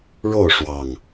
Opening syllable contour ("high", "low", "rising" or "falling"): falling